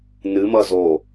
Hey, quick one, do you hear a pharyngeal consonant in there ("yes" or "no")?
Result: no